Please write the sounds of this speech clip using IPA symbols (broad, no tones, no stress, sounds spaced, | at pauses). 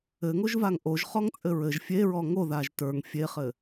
ɘ ŋ o ʒ v a ŋ ʔ o ʒ χ ɔ ŋ t͡sʼ ɘ ɹ ɘ ʒ fʲ e ɹ ɔ ŋ o ð a ʒ t ə˞ ŋ fʲ e χ ɘ